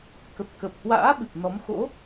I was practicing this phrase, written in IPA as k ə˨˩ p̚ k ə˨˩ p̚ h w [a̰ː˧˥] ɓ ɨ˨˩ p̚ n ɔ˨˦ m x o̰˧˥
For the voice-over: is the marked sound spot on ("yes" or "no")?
yes